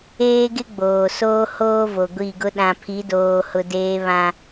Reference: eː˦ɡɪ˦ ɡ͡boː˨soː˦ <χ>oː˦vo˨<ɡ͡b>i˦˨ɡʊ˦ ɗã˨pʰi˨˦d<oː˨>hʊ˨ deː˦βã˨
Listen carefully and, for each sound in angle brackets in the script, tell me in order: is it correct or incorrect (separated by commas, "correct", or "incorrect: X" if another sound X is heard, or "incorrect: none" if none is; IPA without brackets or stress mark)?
incorrect: h, incorrect: ɡʷ, correct